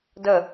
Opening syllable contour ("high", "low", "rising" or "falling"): falling